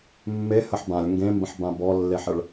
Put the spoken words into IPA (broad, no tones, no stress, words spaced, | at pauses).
mːehəħ bãlʲ ŋɡẽmbə̃ħbã bɔlːeħəɭ